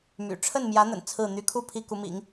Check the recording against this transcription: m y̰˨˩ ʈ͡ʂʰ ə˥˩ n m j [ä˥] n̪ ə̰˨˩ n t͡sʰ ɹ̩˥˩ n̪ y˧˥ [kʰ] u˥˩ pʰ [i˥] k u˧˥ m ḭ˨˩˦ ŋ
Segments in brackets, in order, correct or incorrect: incorrect, correct, correct

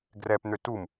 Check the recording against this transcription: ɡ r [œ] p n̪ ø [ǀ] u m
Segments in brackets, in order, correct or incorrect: incorrect, incorrect

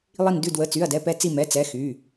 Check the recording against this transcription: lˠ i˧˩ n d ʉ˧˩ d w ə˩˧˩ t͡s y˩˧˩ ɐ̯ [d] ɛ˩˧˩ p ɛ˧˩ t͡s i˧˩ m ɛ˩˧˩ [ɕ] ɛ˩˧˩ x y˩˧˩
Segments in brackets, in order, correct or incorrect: correct, incorrect

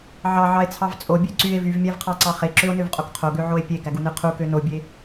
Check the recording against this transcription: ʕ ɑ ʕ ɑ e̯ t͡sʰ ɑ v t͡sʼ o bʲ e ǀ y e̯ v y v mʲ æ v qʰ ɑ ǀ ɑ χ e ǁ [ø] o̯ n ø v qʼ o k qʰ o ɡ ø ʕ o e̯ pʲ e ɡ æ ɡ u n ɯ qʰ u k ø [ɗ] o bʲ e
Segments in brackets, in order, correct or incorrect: correct, incorrect

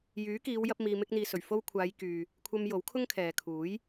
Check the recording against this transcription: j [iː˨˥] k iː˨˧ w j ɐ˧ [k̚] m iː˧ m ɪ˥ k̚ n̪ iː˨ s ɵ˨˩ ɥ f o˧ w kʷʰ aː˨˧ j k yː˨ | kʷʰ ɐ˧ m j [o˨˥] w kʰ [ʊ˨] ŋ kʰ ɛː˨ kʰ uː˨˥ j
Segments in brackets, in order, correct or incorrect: incorrect, incorrect, correct, incorrect

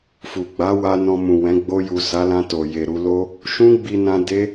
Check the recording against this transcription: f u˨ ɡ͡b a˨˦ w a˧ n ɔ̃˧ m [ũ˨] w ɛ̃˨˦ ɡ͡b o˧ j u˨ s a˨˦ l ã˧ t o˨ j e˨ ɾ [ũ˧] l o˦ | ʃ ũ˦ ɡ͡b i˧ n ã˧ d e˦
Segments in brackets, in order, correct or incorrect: correct, incorrect

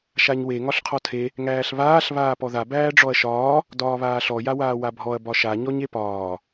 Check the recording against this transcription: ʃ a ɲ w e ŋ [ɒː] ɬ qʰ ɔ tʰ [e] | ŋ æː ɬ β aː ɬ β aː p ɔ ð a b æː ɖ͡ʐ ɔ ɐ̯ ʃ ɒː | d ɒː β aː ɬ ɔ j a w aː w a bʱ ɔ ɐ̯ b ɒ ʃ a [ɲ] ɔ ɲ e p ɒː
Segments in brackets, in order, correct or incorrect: incorrect, correct, correct

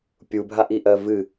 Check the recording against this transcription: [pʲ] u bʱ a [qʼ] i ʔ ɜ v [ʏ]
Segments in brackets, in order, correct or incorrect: correct, incorrect, incorrect

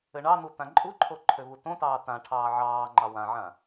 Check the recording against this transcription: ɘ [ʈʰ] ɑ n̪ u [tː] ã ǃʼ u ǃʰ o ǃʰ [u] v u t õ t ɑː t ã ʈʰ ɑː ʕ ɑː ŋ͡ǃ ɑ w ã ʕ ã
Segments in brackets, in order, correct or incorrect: incorrect, incorrect, incorrect

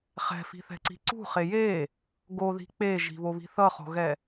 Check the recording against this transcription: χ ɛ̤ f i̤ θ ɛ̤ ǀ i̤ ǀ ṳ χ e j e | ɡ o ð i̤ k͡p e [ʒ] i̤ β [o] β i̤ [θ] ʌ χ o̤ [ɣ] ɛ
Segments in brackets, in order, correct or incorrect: correct, correct, correct, correct

